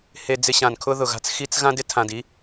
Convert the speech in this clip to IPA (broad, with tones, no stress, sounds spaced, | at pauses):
h e˧ d͡z ɪ˧ ɕ ã˨ n kʰ ʊ˦ ð ʊ˨ ɣ a̤˦ t͡s x i˦ t͡s ɣ ã˦ d ɪ˦ tʰ ã˨ d i˦